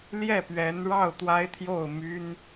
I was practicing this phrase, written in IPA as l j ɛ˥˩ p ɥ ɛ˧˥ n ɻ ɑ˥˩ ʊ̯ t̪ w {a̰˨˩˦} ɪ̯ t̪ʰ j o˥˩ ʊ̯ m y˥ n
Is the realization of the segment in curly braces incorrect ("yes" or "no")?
yes